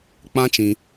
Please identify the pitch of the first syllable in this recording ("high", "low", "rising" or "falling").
high